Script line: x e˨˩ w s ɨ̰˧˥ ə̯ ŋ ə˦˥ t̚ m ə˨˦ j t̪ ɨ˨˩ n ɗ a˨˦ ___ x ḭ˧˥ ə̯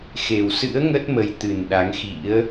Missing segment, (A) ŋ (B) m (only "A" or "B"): A